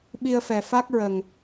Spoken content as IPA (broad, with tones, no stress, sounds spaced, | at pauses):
ɓ i˧ ə̯ f ɛ˨˩ f a˦˥ k̚ ɹ ə˨˩ ŋ